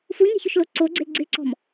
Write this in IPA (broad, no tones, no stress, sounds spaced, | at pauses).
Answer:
f u ɲ ɛ̤ ç ʊ ʃ l o ǀ o ɡ͡ǀ ɪ l ɡ͡ǀ ɪ ǀ ɔ̤ m